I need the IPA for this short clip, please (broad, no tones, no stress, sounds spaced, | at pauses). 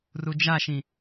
r u d͡ʒ a ʃ ĩ